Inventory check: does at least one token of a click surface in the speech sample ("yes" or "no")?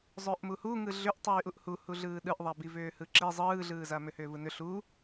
yes